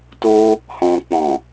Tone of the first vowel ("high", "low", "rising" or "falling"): high